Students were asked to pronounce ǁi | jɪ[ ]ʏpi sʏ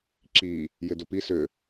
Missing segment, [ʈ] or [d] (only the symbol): d